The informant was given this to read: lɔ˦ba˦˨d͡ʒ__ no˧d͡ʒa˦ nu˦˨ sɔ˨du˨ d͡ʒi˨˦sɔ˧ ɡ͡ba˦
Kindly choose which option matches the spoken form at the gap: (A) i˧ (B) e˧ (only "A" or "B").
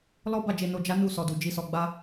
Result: B